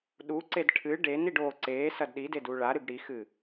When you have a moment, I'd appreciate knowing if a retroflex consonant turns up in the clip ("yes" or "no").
yes